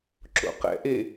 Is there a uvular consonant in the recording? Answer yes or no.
yes